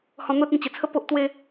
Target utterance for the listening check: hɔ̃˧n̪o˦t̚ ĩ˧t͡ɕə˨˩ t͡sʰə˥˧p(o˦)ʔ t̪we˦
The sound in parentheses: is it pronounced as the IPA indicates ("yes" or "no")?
yes